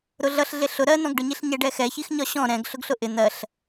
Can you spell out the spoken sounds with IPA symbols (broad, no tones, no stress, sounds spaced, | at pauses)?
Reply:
ɾ ʊ ɮ ʌ ɬ ɮ ɪ ɬ ʊ ɾ ɜ n ɔ̃ ɡ ɖ ʊ ɲ i ɬ ɲ ɛ ɖ ɛ x ɛ ç i x ɲ ɒ ɕ ɔ̃ ɾ ɛ̃ ɡ ɬ ʊ ɡ ɬ ʊ ʔ ɪ n̪ ɜ ɬ